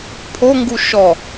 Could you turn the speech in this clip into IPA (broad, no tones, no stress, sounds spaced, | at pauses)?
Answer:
pʰ o ŋ ɡ u ʃ ɔ